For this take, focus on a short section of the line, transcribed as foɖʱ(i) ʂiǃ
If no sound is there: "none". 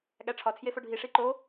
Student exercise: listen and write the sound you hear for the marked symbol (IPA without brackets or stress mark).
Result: i